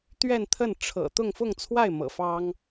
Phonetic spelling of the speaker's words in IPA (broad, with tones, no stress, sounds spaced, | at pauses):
t̪ ɥ ɛ˥˧ n t̪ʰ ə˥˩ n ʈ͡ʂʰ ɤ̰˨˩ t̪ ʊ˥˧ ŋ f ʊ˥˧ ŋ t͡sʰ w a˥˩ ɪ̯ m ɤ̰˨˩ f ɑ˥ ŋ